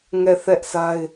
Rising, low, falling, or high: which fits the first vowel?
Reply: falling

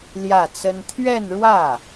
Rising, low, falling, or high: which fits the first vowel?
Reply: falling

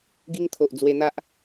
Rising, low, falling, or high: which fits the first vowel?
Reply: high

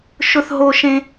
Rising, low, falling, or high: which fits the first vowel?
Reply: high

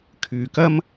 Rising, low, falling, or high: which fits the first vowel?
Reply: low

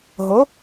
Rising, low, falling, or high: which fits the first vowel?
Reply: rising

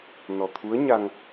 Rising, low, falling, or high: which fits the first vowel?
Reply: low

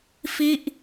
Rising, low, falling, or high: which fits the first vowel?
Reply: falling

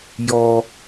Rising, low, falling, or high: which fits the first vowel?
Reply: low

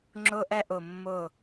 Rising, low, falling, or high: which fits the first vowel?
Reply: high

